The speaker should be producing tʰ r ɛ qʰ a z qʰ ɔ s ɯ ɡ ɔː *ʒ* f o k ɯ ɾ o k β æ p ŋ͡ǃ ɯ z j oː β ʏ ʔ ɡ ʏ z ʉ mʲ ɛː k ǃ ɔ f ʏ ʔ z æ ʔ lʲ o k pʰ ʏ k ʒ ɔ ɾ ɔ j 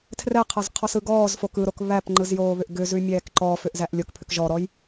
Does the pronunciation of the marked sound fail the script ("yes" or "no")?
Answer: yes